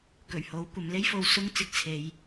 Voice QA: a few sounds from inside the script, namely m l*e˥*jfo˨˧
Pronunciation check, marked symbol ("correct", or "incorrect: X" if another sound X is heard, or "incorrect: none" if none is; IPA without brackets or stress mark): correct